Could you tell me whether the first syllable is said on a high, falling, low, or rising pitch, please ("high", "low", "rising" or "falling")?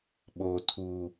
low